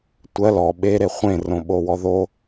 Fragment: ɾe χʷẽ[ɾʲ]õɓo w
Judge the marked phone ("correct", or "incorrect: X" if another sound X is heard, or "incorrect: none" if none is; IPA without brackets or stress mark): incorrect: r